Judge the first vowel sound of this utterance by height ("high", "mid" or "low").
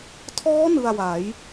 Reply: mid